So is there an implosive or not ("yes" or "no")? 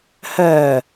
no